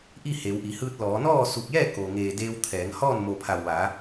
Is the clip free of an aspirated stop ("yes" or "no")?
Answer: no